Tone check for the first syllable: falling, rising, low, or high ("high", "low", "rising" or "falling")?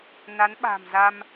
rising